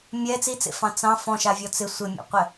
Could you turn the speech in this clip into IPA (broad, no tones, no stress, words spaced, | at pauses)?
mʲɛ t͡sit͡sḛfɑ̃ t͡sɑ̃ fɔ̃ʃavʲɔ t͡sɪ sʷɪmʲṵqʷɛ